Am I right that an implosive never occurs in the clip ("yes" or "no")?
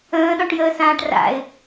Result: no